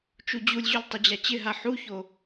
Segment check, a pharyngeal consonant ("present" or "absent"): present